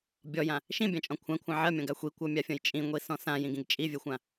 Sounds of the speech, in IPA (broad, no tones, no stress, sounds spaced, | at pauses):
bʲ ɔ j ã | ʃ ĩ bʲ ã t͡ʃʼ ɔ̃ kʷʰ ã kʷʰ ã ʕ ɜ mʲ ɔ̃ ɡ a xʷ i kʷ ɜ mʲ a fʲ ɔ̃ j t͡ʃʼ ĩ ŋʷ i s ɔ̃ s ã j ĩ ɡ ĩ ɡ t͡ʃʼ i vʲ ɜ xʷ ã